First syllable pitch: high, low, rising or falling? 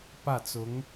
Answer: falling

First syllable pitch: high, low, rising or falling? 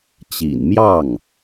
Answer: low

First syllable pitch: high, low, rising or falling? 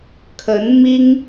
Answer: rising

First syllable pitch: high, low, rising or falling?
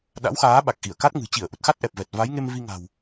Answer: rising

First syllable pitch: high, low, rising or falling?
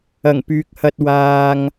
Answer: low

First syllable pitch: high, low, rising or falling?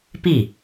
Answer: falling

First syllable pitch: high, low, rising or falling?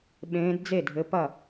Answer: rising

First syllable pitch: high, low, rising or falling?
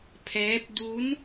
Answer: rising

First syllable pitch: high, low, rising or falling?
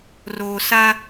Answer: low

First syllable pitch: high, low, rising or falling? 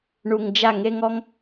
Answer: low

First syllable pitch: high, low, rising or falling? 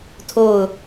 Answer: falling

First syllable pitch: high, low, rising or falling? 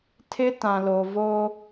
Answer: high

